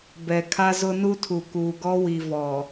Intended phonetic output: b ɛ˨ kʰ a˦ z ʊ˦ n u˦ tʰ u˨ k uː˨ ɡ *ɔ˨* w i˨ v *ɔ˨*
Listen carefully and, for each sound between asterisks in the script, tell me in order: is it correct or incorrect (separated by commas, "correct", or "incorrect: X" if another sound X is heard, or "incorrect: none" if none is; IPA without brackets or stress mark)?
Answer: incorrect: ɔ˦, correct